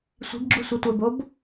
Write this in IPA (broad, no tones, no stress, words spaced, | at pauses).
sʷi̤bɡ͡ǁu sʷetʷɛbob